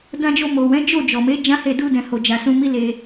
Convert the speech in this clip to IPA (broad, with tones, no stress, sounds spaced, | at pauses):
d ã˧ d͡ʒ o˧ m o˨ w ɛ̃˨˦ d͡ʒ o˦˨ d͡ʒ ɔ˨ m e˨˦ d͡ʒ ã˦ h e˦˨ d u˧ d ɛ̃˨ h o˨ d͡ʒ a˨ s ũ˧ m i˦ l e˧